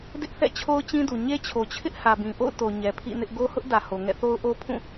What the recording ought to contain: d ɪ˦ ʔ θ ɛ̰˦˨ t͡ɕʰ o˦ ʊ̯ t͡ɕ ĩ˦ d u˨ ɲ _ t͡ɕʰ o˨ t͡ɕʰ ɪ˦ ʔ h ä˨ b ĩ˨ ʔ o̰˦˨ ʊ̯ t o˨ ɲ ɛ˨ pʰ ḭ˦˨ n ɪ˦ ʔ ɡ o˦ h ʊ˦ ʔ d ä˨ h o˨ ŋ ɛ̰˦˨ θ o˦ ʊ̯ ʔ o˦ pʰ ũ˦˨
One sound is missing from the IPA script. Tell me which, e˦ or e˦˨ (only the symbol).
e˦